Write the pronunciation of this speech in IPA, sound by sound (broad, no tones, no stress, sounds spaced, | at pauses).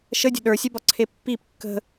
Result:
ʃ ə dʲ ə̤ ɗ ə˞ sʲ ɛ b ɒ ǀʰ e pː i p kː ə̤